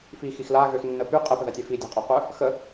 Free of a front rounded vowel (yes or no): no